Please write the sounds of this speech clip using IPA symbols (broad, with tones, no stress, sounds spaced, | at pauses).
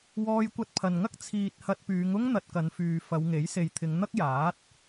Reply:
w ɔː˧ j kʷ ɐ˧ t̚ pʰ ɐ˨ n ŋ ɐ˥ k̚ t͡sʰ iː˨ t̚ h ɐ˧ t̚ p yː˨˧ ŋ ʊ˥ ŋ n̪ ɐ˧ t̚ k ɐ˨˧ n f yː˨ f ɐ˨˧ w ŋ e˨˥ j s e˨ j t̪ʰ ɪ˨˧ ŋ n̪ ɐ˥ k̚ j aː˨˥ t̚